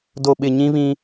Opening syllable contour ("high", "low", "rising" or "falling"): low